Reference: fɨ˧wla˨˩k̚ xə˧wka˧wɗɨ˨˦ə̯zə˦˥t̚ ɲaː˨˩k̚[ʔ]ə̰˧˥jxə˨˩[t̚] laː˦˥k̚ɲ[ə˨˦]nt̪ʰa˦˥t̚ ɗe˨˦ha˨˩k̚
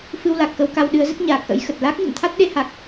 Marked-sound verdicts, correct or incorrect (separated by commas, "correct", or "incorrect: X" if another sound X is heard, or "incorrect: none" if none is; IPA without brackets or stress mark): correct, correct, incorrect: ə̰˧˨